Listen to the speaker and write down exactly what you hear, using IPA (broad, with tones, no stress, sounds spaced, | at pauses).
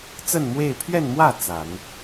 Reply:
t͡s ə˥˧ n m w e˥˧ ɪ̯ pʰ ɥ ɛ˥˧ n m w ä˥˩ t͡s a˨˩˦ n